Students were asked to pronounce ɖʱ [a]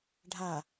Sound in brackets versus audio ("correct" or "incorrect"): correct